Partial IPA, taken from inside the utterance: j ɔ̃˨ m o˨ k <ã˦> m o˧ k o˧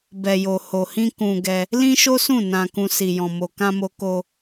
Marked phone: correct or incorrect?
incorrect